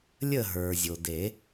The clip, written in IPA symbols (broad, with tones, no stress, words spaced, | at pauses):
lʲə˥˨ ɦə˞˩ zʲo˩de˨˩˦